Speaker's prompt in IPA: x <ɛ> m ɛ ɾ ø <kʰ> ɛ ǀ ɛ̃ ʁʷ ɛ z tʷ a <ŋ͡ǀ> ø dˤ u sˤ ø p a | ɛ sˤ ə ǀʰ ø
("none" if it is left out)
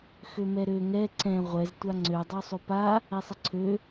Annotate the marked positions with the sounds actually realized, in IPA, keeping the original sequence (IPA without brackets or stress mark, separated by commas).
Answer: ø, ŋ, ŋ͡ǀ